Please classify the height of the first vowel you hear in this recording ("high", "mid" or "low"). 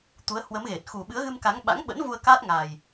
high